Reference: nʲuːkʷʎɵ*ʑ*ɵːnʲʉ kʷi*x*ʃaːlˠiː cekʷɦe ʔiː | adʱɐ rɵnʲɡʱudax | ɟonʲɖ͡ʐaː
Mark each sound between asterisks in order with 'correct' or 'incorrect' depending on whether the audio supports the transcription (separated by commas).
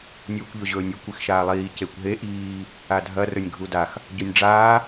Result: correct, correct